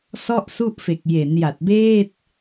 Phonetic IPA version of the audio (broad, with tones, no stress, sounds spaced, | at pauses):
s ɔ˥˩ ʔ s u˥˩ ʔ f e˨˩ k̚ j e˩˦ n j a˨˩ t̚ b eː˥˩ t̚